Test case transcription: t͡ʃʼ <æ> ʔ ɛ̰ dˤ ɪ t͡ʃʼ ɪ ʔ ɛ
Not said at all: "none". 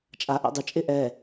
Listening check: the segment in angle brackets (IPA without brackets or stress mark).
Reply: a